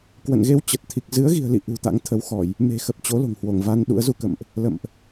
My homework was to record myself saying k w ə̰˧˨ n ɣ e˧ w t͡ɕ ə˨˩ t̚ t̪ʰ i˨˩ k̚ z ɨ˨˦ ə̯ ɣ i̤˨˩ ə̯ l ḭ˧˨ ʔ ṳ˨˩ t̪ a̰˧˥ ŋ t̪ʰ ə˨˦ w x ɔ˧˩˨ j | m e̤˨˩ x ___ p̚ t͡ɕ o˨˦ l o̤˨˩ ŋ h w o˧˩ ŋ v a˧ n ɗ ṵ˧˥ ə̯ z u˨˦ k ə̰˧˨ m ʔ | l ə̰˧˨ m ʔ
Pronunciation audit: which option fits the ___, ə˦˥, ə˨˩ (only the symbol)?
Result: ə˨˩